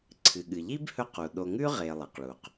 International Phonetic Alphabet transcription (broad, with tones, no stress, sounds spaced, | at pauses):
ǀʰ ɨ˩ ɠ ɨ˩ ʎ i˥ b h ɵ˦ q u˩ ɗ o˨ ŋ ʉ˥ ʁ e˨ lˠ i˩ q ɭ u˩ q